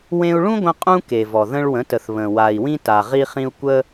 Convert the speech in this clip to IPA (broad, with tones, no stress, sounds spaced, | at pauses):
w ẽ˧ u̯ ɭ ũ˦ ɡʷ ə̃˧ qʼ ũ˦ k e˨ v ɔ˨ ð ə̃˧ ɭ w ə̃˨˦ t ə˨ θ β ə̃˨ w a˨ i̯ w ĩ˦ t a˨ ʁ i˧ χ ĩ˧ u̯ kʷ ə˦